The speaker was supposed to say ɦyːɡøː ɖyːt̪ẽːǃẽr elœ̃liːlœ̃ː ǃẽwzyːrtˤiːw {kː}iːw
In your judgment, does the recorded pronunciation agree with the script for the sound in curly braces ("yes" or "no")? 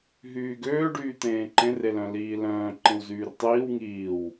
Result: no